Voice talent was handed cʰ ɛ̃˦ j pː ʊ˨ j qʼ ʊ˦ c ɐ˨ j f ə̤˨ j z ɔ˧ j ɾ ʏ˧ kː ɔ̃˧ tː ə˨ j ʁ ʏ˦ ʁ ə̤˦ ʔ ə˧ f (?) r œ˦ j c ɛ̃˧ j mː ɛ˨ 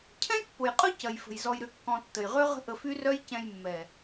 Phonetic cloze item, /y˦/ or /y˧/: y˦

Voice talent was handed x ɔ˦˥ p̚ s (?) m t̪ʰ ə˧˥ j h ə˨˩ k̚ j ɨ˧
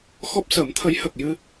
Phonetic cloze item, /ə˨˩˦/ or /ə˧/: ə˨˩˦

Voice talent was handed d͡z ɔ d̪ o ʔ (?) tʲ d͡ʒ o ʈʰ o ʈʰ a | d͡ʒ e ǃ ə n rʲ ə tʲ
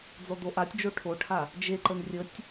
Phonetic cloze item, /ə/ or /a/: a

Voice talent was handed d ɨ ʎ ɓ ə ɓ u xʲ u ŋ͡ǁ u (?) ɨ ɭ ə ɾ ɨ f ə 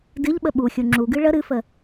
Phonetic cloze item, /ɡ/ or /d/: ɡ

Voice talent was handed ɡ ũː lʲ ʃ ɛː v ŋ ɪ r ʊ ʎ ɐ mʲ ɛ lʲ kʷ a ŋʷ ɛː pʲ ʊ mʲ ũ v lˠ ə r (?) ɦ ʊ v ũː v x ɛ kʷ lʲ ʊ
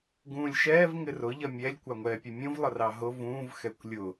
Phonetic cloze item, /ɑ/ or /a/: ɑ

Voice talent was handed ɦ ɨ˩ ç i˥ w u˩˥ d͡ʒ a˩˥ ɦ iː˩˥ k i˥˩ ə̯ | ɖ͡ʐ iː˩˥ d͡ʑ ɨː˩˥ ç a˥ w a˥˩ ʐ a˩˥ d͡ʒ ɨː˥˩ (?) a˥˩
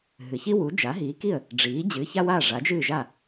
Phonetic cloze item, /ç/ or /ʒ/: ʒ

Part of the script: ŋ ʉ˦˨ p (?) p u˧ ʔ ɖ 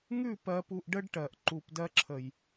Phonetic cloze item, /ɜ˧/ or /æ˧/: ɜ˧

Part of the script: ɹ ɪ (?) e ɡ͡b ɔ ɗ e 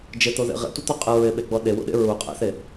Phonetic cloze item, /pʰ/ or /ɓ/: ɓ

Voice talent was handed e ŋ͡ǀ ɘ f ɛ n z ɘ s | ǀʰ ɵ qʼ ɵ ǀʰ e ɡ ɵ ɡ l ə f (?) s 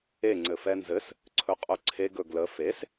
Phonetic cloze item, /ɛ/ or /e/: e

